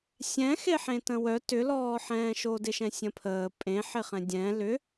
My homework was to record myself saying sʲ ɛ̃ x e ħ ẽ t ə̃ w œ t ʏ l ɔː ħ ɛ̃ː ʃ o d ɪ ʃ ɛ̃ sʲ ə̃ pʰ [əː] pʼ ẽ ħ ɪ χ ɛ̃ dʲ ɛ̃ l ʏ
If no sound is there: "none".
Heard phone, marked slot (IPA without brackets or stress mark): əː